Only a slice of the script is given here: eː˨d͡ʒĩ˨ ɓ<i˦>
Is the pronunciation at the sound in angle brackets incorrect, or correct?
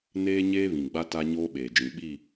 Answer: incorrect: i˦˨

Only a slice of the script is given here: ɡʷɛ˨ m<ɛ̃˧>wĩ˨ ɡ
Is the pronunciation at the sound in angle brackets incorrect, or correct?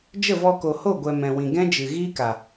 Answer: incorrect: ɛ̃˨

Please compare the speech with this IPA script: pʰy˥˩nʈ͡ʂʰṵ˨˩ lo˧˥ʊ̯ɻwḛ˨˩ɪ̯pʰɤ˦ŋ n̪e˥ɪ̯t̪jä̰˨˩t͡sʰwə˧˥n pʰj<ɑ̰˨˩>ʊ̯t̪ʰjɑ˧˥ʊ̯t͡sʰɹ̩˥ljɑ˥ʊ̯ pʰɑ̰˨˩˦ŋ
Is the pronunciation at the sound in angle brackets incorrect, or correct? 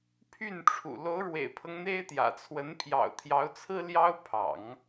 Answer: correct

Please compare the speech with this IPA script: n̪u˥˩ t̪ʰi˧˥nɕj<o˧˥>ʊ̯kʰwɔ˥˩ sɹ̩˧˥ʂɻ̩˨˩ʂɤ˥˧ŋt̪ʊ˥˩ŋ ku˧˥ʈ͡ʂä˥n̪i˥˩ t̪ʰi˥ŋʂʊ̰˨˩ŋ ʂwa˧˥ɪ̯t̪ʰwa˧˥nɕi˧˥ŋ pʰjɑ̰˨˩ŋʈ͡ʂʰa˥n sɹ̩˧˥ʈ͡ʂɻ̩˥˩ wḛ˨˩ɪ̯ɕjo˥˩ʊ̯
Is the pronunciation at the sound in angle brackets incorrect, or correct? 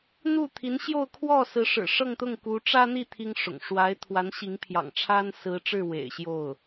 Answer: incorrect: o˥˧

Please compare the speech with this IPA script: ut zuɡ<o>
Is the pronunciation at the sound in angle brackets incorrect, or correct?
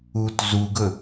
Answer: incorrect: ɵ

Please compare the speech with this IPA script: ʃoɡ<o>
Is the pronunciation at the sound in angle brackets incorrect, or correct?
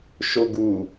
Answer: incorrect: u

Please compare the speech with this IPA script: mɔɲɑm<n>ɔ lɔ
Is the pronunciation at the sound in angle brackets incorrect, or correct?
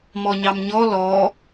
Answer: incorrect: ɲ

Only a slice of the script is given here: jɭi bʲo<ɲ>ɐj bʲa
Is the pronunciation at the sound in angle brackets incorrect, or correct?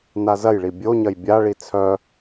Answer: correct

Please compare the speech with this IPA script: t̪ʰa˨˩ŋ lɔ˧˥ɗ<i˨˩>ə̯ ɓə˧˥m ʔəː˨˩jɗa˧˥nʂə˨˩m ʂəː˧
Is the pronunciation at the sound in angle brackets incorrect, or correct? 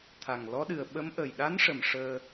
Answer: incorrect: ɨ˨˩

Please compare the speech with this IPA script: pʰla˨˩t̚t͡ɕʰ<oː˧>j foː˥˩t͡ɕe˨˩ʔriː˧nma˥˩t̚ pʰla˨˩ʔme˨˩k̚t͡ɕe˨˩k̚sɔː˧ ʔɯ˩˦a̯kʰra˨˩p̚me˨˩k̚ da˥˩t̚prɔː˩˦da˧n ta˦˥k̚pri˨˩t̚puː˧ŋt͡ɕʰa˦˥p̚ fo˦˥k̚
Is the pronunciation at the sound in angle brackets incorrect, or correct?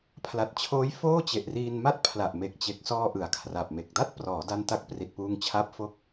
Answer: incorrect: oː˦˥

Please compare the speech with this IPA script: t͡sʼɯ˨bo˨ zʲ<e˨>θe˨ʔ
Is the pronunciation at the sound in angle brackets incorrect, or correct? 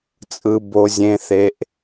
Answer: incorrect: ẽ˨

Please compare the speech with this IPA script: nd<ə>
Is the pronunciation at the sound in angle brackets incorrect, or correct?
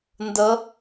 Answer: correct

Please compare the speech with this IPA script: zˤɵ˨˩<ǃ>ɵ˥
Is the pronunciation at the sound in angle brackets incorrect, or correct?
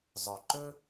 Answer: correct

